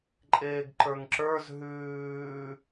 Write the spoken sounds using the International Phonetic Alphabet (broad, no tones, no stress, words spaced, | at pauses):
ǃʼeːɡǃə˞ŋǁə˞z ɦʉː